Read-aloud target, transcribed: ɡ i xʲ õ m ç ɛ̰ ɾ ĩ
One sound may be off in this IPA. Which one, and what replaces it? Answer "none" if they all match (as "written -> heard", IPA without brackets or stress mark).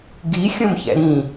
none